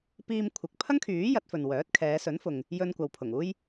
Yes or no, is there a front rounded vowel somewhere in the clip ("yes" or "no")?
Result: yes